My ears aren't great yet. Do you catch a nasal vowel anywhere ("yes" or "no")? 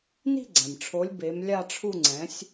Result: yes